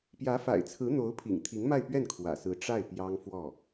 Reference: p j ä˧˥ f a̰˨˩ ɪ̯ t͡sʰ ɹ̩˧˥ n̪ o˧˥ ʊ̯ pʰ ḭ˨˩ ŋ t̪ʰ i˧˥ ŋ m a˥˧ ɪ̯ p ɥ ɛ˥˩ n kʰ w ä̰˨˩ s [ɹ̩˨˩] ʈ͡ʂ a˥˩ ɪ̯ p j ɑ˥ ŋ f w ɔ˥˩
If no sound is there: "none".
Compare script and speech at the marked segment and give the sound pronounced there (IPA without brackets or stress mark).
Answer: ɹ̩˧˥